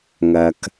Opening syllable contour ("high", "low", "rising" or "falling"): low